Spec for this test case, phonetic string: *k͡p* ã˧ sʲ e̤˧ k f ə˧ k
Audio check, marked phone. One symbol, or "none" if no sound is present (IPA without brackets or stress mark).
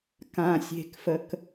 k